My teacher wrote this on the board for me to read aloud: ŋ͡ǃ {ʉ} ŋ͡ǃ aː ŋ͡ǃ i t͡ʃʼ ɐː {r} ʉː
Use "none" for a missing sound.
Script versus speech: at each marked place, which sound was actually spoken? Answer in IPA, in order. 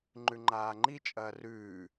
ʉ, r

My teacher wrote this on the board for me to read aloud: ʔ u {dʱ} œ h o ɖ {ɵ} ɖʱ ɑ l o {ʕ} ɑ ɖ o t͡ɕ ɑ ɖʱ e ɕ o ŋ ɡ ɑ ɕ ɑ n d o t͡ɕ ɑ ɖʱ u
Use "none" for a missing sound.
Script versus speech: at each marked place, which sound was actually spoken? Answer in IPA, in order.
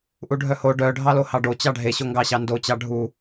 ɖʱ, œ, h

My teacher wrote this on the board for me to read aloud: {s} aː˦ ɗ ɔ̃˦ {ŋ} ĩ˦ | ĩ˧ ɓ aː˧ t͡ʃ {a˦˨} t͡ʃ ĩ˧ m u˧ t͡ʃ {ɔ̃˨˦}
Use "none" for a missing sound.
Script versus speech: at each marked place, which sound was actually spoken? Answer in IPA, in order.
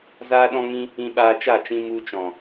z, ŋ, a˦˨, ɔ̃˨

